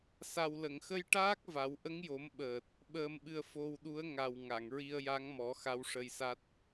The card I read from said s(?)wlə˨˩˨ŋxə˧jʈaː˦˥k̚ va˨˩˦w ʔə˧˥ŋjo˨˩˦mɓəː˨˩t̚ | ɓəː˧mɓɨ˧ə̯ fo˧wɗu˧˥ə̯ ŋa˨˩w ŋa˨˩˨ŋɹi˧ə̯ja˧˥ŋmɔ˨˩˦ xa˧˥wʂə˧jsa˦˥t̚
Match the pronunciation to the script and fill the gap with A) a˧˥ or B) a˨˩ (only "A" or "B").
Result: B